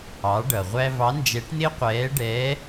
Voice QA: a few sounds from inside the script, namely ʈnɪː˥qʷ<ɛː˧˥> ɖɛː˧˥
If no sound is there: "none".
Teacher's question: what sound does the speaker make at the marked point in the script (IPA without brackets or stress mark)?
ɛː˧˥